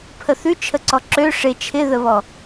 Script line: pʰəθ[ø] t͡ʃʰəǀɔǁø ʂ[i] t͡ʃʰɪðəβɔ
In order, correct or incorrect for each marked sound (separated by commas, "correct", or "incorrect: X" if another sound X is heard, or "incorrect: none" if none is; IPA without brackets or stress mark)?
incorrect: ʉ, incorrect: ɪ